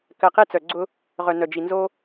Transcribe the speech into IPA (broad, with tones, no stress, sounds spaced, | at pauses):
k ɜ˨ q e˦ t͡s œ˨ ɡ͡ǀ ʊ˦ | ʁ œ˨ n œ˨ d͡ʒ i˨ n z o˦